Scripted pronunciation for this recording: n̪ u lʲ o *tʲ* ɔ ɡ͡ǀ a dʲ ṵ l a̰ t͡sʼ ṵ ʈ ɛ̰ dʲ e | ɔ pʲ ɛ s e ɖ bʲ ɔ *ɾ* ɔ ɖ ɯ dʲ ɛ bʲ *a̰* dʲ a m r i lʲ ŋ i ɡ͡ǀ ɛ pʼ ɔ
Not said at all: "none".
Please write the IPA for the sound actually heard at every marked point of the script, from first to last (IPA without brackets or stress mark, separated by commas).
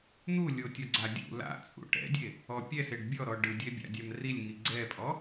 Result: tʲ, ɾ, a̰